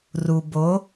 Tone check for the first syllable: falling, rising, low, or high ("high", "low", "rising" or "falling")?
low